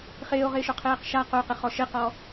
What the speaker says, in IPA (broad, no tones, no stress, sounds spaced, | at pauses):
χ ɪː o̯ ʁ ɪː ʃ ʊ qʰ eː q ʃ a q o q ɪ χ ɔ ʃ ɪ q ɔ